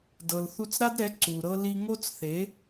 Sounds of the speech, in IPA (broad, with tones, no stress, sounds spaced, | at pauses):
d ɤ˨ l θ u˧ t͡s ɾ a˦ d ɾ ɛ˨˦ ǀ u˨ ɾ ɤ˦ l i˧ ŋ o˦ t͡s θ e˨˦